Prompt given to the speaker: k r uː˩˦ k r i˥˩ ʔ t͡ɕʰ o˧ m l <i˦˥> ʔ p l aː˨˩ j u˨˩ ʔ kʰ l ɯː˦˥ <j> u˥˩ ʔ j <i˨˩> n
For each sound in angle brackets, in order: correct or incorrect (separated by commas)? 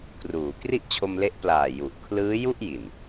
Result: incorrect, correct, correct